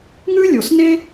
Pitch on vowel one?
high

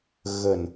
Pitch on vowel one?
low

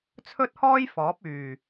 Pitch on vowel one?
high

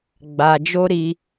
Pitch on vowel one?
low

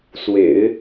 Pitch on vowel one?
low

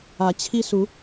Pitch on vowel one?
rising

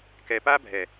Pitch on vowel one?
low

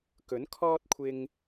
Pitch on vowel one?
rising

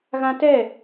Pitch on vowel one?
high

